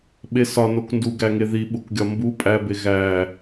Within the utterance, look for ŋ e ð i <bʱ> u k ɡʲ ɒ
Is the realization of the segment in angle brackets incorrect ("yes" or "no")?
yes